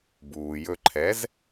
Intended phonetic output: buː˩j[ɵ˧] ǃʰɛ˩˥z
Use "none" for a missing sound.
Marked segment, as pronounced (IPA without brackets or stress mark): ɵ˧